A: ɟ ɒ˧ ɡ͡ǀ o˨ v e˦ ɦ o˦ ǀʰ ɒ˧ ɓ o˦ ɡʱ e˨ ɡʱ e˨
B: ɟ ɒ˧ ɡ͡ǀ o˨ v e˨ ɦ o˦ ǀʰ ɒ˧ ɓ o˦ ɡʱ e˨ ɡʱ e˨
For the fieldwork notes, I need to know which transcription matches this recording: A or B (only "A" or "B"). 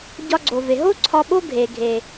B